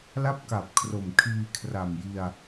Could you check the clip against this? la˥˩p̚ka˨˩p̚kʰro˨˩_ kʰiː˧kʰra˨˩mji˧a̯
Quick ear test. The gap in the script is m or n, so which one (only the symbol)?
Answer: m